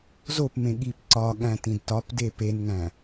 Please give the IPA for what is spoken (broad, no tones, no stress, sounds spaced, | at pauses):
z o p m ẽ ɠ i p ǀ ɒ ɠ æ̃ t ĩ d t ɒ p d e p e n ŋ æ̃